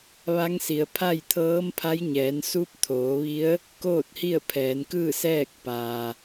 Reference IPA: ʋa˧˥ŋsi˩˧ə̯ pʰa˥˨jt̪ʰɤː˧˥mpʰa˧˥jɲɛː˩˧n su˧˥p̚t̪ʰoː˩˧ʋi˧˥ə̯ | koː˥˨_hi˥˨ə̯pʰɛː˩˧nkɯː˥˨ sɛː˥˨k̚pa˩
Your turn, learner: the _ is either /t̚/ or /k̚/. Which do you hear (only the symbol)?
t̚